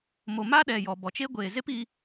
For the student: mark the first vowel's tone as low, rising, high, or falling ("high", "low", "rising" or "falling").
low